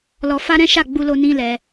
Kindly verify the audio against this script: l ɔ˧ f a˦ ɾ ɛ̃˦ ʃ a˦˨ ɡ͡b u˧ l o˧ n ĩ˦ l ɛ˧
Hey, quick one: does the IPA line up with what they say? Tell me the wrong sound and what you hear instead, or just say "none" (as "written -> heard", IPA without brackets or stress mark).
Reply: none